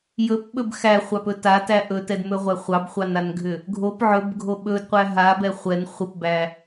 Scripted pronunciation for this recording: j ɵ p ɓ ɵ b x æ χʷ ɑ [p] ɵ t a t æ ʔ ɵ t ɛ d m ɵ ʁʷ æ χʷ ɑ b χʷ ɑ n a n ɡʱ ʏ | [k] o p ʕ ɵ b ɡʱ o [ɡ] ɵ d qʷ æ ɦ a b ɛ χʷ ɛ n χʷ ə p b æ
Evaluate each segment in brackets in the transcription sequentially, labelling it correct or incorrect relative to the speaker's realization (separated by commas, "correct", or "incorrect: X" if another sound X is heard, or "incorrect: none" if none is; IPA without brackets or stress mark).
correct, incorrect: ɡʱ, incorrect: ɓ